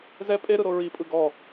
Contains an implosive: no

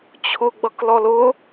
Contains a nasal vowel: no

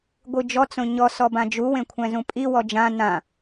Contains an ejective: yes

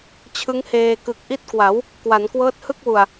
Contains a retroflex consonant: no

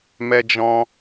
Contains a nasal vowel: yes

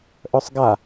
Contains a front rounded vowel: yes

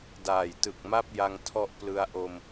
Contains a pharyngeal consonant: no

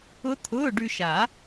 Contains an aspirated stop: yes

